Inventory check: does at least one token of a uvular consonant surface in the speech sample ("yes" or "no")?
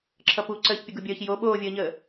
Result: no